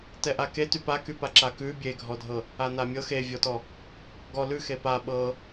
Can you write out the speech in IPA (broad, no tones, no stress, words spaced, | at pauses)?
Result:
tɛʔake typakypa ǁakʉ bʲeɡʱɔdʱɤ | anamʲɤ xevʲɔtɔ | ɡɔ lʉ xepa ɓɤ